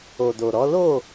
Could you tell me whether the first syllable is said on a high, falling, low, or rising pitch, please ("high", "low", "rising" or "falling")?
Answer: low